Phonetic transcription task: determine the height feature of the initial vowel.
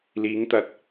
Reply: high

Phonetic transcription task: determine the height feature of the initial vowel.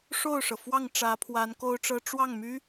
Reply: mid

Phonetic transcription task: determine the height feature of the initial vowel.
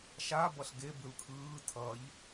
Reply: low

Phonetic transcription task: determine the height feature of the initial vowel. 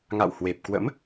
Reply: low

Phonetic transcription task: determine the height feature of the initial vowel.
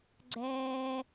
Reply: mid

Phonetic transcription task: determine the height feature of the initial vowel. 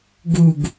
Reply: high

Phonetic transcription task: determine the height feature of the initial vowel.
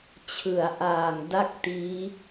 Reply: high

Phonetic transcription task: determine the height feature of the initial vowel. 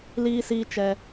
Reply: high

